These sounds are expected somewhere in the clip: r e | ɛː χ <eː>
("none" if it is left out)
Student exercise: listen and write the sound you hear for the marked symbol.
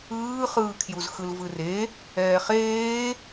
eː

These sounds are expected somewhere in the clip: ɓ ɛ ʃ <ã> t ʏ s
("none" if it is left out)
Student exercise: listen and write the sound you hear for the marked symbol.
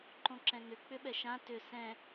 ã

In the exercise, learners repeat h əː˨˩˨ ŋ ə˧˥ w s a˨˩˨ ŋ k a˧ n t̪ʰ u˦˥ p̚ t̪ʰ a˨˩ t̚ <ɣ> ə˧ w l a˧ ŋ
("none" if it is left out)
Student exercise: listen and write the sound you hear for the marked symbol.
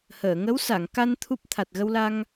ɣ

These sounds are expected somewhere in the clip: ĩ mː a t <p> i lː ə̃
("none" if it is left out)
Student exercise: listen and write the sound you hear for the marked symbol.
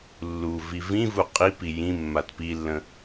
p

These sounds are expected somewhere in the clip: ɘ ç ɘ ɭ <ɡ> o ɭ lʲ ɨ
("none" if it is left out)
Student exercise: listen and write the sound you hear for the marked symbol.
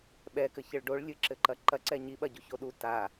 ɖ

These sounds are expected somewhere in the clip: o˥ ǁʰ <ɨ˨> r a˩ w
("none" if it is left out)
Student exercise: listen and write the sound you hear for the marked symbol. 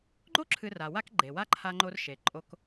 ɨ˨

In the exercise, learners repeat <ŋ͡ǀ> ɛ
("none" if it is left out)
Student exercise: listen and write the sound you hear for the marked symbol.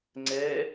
ŋ͡ǀ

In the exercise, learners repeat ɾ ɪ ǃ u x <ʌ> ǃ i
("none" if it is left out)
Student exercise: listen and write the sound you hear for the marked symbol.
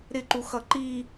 ʌ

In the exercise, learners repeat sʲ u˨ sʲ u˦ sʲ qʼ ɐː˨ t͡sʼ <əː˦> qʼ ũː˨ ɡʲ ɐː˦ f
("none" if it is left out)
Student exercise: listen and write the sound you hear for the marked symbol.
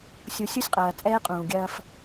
ɛː˦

